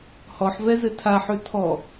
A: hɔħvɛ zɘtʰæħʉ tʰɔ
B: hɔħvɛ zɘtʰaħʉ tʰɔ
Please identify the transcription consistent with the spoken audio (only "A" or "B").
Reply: B